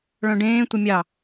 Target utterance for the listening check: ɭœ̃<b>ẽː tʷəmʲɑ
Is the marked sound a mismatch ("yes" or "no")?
yes